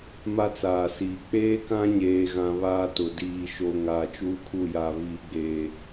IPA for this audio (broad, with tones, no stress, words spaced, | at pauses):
ma˦t͡saː˨siː˨ k͡peː˦kã˦ɲeː˨ɣã˨ βaː˦tʊ˨ diː˨ʃo˨ ŋaː˨t͡ʃuː˦kʰu˦˨ja˨ βiː˨ɡ͡beː˨